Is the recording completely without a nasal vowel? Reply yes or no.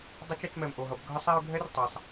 yes